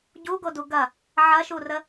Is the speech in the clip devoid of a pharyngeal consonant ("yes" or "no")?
no